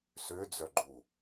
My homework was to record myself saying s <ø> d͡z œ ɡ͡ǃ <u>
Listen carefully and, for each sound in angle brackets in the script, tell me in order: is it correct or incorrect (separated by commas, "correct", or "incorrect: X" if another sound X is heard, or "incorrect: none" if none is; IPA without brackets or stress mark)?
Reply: correct, correct